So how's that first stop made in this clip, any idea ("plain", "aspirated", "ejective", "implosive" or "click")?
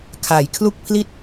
aspirated